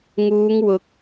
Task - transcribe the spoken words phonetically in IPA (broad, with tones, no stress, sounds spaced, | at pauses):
ŋ uː˨˧ ŋ w ʊ˨˥ k̚